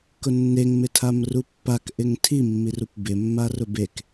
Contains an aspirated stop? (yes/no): yes